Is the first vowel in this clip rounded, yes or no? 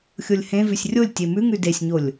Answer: yes